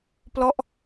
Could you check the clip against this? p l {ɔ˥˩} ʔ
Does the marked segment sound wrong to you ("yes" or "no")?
no